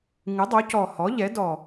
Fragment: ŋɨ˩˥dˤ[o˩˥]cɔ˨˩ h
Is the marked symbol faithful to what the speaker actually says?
yes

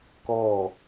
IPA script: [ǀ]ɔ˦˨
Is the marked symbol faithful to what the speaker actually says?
no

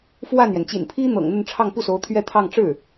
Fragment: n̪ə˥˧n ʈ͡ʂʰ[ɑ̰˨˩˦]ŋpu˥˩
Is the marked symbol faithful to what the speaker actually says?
no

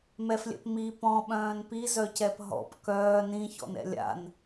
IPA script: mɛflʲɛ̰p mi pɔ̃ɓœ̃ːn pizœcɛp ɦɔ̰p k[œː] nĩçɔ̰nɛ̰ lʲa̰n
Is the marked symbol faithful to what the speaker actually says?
yes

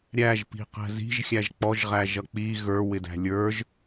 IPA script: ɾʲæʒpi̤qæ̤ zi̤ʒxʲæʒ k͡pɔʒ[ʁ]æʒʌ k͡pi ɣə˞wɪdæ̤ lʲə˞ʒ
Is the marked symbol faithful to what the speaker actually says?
yes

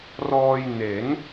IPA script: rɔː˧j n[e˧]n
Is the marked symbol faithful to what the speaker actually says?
no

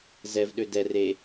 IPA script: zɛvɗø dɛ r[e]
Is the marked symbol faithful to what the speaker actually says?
yes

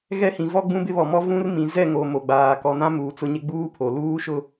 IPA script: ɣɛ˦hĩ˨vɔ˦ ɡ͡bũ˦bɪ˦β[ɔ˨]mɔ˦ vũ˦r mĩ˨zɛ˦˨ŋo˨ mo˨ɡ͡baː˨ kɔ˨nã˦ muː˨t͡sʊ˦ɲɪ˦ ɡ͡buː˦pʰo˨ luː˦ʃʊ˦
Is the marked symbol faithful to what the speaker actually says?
yes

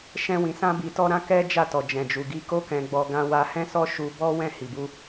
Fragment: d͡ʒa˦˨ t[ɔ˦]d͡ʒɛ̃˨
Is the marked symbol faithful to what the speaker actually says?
no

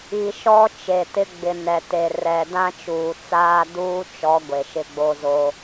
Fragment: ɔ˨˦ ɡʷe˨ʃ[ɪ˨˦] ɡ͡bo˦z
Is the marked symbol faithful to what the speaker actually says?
no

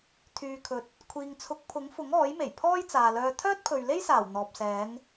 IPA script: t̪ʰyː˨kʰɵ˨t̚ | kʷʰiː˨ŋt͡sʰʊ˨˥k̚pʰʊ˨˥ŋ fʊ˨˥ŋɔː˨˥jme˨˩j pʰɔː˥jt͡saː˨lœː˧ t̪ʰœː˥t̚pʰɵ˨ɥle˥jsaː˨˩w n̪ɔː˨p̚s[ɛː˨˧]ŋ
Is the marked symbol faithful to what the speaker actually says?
yes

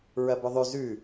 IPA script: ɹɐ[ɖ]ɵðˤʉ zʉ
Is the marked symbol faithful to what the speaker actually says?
no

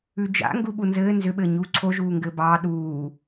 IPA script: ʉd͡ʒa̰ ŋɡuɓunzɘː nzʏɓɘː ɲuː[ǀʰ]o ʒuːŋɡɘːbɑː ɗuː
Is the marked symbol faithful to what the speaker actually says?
yes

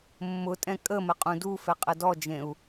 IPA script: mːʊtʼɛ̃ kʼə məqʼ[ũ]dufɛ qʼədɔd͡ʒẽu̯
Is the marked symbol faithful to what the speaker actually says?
yes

